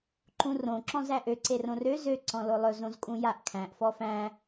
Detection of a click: present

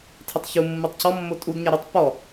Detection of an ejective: present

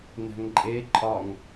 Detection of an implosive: absent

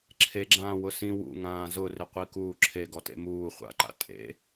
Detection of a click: present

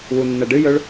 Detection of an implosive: absent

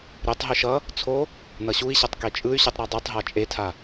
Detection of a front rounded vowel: present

